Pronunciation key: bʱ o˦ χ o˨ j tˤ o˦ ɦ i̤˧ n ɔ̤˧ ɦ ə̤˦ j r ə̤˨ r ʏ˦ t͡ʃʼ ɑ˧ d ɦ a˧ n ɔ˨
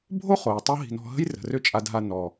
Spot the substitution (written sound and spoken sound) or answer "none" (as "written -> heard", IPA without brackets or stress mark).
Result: ɑ˧ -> a˧